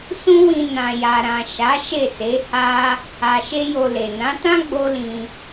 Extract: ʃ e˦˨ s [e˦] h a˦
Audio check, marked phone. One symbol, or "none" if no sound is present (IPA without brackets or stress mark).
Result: e˨˦